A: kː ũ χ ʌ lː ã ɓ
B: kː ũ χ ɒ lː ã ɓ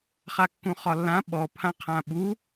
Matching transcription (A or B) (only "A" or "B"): B